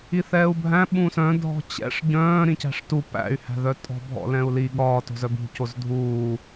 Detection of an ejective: present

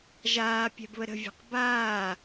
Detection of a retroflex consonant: absent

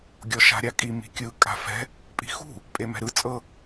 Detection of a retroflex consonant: absent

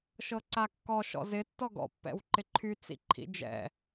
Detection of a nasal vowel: absent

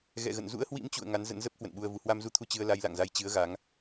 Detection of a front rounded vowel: absent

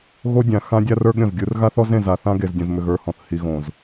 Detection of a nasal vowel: present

